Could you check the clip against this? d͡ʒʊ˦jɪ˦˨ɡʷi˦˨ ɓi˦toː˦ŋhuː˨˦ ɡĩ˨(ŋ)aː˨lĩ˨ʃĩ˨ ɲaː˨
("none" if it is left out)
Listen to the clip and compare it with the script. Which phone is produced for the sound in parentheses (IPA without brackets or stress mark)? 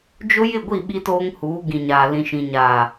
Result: ɲ